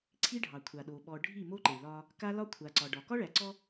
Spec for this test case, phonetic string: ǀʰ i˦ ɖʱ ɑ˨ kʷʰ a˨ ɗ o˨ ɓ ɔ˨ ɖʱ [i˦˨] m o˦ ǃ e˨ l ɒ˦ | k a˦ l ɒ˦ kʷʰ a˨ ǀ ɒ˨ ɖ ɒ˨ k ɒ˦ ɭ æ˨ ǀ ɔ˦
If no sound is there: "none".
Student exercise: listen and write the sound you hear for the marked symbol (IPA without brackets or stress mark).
i˦˨